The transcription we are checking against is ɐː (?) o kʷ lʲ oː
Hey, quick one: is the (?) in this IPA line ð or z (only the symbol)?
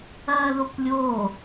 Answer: ð